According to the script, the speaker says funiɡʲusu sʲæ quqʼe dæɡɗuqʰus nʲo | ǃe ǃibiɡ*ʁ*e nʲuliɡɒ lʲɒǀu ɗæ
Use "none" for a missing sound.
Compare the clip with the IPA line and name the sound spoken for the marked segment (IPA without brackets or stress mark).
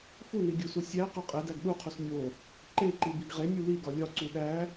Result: ʁ